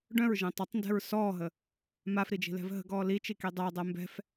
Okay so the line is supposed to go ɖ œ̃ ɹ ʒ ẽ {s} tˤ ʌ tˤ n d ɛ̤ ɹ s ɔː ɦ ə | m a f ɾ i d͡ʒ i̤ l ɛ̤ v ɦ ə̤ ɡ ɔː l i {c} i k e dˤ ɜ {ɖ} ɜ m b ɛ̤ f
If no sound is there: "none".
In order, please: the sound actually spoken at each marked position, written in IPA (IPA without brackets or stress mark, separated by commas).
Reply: none, t͡ʃ, dˤ